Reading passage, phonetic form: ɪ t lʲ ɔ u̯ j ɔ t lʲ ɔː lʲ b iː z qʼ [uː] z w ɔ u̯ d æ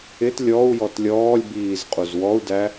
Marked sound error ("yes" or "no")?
yes